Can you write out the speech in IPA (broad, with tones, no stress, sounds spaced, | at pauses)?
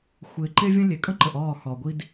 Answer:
xʷ ɪː˨ ǃ e˧ vʲ ə̃˦ lʲ e˨ kʼ ə̃˦ ǃ ə˨ ʔ ɒː˦˨ x ɒ˨ ɡʷ i˧ d